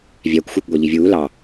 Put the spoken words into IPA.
vʲækʷ xʷɑkʷɡʷɛʎivʲuː lɑ

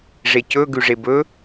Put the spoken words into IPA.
ʐecɵ ɡʉʐebɵ

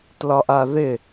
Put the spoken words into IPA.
tlɒʔaðɪ

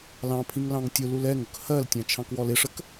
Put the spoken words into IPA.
lɑ̃pʰĩŋ lɑ̃ŋtʲʊlul ɛŋʊk hɜltʲɑ̃ t͡ʃʰɑ̃kwɔlɪʂək

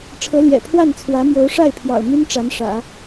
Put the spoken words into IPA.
ʈ͡ʂʰɤ˧˥ljɛ̰˨˩ pʰwa˥˩nt͡sʰwä˧˥mjo˧˥ʊ̯ʂa˥˩ɪ̯ pʰjɑ̰˨˩ʊ̯my˥n ʈ͡ʂa˧˥nʂä̰˨˩˦

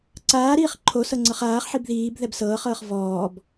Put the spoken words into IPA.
ǀaːɾiːχ ǃʰo sɤŋ͡ǀɤχaːχħib ðiːb ðɛbsɤːχɤːχ vɔːb

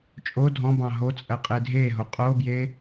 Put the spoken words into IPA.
t͡ʃʼo dʱɔ̃bɑ̃ ɦot͡sʼɜ qʼedʱeɦo qʼobje

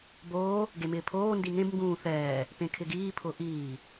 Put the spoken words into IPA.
boː | ɡemɪːpʰoː ndiŋẽb ŋɡũːθɛː | pẽkʰɪɡiː pʰʊʔiː

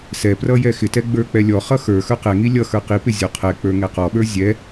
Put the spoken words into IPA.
sɛprʌ jɛxɪtɛ ɡ͡bə˞k͡pɛlʲɔχʌ xə˞xə˞ qɛŋi lʲʌ xə˞qipɪ zʲɔqʰɛk͡pə˞ ŋɛqɔɓə˞ zʲɛ

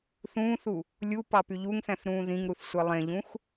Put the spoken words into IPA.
θũːθu | lʲu pɑpyʎuŋθæ̃θ ɾũːðĩŋɾuθ sʷelˠẽʎũx

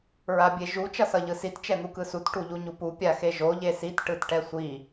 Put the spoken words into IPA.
ɹabʲeʒu t͡ʃʌsʌʎɯsit t͡ʃɛn̪ukɯsut ʈuʎuɲupu pʲaxeʒo ʎesit ʈɯtʈɛsʷi

